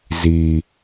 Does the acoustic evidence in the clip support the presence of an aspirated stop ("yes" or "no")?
no